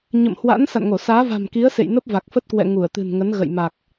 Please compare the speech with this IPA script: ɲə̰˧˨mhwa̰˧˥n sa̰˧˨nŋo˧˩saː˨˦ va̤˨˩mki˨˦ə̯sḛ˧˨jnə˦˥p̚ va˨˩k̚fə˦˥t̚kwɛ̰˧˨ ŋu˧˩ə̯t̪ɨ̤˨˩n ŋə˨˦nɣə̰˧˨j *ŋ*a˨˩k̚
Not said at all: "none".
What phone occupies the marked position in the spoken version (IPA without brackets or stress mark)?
m